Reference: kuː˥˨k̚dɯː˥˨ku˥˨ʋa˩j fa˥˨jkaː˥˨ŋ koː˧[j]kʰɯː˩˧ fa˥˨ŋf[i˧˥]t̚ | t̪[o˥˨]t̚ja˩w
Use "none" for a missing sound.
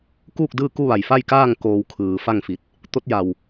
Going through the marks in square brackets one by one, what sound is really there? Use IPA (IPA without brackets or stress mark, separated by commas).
w, i˧˩, o˧˥